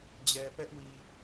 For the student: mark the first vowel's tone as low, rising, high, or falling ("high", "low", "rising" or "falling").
low